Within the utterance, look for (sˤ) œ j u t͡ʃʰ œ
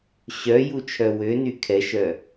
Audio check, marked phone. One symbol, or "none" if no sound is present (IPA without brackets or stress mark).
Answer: ɕ